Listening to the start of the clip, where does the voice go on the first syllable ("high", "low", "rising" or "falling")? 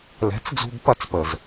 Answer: rising